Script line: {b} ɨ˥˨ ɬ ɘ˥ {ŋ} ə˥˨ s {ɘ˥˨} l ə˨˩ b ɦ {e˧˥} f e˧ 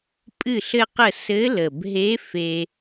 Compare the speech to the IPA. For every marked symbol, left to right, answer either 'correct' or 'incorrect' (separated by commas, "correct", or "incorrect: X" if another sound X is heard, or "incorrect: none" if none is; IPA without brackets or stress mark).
incorrect: pʼ, incorrect: q, incorrect: ɘ˧˥, correct